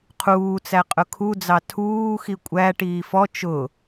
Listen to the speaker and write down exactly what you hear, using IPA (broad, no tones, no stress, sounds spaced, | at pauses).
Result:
qʰ uː t͡s æ qʼ ʊ kʰ u d͡z ɑ tʰ uː x i kʷʼ æ ʈ iː f ɔ t͡ʃ ʊ